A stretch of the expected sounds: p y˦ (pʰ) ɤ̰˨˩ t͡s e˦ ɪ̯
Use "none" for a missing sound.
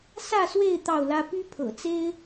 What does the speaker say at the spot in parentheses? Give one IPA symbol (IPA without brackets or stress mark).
pʰ